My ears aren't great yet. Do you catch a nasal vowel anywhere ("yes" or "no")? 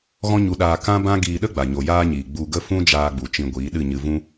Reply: yes